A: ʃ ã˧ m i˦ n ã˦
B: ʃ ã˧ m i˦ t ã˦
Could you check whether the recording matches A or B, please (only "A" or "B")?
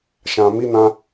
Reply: A